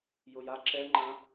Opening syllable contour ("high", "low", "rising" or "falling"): low